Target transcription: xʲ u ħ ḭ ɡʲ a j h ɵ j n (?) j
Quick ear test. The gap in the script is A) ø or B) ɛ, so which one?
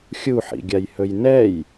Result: B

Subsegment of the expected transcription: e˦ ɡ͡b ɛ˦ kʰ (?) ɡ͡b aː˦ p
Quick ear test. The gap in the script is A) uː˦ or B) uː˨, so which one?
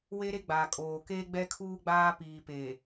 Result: A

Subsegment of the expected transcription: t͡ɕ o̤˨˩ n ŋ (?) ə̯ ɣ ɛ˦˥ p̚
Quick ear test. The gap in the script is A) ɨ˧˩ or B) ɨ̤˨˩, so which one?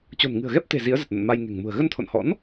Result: B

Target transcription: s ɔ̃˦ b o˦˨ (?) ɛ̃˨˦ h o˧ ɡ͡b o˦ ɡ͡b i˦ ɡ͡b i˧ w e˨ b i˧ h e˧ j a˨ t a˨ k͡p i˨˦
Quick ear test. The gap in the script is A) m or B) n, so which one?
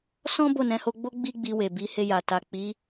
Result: B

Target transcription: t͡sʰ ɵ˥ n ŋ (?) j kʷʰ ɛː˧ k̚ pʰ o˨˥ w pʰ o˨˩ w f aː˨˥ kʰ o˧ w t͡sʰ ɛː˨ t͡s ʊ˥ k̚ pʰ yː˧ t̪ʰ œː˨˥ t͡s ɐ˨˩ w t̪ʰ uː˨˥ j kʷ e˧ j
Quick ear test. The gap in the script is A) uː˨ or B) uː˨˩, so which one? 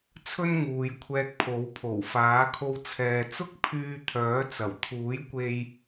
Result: A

